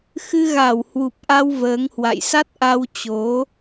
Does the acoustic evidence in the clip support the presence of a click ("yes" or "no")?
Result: no